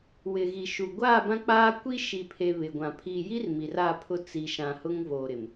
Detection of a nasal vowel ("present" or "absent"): present